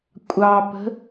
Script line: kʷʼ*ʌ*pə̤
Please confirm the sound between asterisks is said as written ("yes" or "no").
no